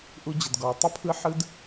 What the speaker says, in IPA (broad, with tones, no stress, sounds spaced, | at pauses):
ʔ u˧ d͡ʑ ə˨ d ɡ ɔ˨ y̯ tˤ ə˧ pʰ ɯ˧ ħ ɯ˦ d